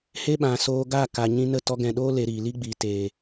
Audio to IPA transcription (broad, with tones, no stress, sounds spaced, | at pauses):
h e˦ ɓ ã˨ s oː˧ ɡ a˦˨ k a˨ ɲ ĩ˧ n ə˦˨ t ɔ˧ ɡ ɛ̃˨ ɗ oː˦ l e˧ ɾ iː˨ l i˦ ɡ͡b iː˨ t eː˨